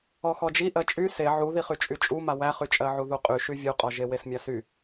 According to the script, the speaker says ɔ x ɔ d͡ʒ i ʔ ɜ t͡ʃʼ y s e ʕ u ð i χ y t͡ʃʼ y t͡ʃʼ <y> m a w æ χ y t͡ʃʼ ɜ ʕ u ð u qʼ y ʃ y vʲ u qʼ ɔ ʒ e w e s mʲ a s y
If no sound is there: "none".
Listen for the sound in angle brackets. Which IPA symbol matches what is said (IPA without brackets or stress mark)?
u